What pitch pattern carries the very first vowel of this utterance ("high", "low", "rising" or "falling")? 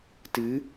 rising